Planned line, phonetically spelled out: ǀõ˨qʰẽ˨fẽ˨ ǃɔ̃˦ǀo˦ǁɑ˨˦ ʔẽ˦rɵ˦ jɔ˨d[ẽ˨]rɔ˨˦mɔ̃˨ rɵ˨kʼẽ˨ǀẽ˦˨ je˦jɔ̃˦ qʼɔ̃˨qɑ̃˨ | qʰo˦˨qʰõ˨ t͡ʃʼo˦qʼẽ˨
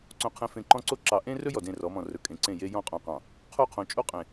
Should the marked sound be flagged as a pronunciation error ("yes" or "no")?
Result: yes